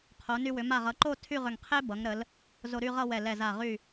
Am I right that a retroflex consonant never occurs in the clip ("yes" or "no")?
yes